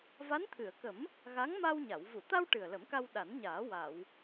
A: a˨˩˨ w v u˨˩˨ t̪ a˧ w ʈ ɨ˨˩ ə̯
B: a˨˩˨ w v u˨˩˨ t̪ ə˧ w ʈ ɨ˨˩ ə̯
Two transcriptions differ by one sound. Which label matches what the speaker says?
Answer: A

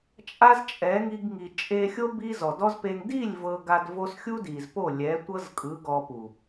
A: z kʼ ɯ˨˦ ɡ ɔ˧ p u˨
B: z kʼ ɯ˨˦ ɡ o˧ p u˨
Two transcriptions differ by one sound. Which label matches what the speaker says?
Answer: A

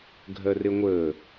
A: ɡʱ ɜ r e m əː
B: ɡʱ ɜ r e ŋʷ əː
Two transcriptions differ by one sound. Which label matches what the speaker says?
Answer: B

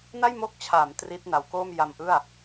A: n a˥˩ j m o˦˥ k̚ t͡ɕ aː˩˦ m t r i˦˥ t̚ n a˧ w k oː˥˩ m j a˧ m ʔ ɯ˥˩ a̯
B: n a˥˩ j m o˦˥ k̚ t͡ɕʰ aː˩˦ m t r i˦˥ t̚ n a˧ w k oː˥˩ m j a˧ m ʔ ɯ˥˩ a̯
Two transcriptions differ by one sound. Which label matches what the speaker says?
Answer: B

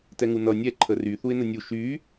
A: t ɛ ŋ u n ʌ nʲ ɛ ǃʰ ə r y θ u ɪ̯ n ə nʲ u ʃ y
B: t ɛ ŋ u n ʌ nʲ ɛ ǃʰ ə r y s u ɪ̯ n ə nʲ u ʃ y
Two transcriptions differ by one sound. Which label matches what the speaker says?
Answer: A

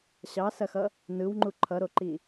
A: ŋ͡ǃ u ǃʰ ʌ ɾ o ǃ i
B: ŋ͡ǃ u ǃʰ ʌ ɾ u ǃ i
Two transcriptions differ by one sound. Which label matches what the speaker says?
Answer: A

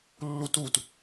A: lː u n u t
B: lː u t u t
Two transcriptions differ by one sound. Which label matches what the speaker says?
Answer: B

